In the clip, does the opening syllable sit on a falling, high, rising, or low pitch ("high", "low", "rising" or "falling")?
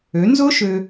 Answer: rising